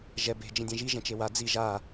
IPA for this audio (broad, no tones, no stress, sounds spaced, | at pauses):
ʒ ɛ b e̤ d͡ʒ ĩ dʲ ɛ̃ ʒ i ʒ ɛ̃ t͡ʃ e w a d͡z i ʒ a